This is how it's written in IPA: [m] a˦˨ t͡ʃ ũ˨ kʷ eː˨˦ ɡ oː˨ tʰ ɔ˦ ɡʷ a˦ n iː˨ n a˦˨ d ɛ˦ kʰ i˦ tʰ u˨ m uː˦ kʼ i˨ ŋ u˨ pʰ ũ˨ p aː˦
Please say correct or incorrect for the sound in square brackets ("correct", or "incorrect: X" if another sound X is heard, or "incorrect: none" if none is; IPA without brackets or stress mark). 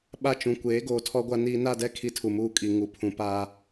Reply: incorrect: ɓ